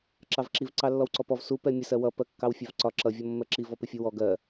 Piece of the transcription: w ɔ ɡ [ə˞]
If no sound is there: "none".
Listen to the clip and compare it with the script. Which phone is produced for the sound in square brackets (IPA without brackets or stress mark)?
ɜ